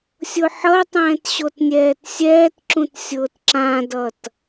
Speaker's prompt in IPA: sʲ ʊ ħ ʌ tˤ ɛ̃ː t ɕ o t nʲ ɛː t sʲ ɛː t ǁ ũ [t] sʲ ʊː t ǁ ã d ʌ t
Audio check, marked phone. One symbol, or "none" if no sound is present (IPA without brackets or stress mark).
t